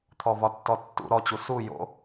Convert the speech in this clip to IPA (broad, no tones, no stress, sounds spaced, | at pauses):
t̪ʰ ɔ v ɒ tː ɔ tː ṵ ɾ ɔ t͡ɕ u s u j o̰